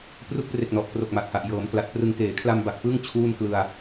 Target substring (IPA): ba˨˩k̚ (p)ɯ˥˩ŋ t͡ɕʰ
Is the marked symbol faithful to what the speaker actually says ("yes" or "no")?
yes